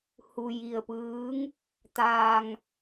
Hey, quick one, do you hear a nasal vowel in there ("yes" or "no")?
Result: no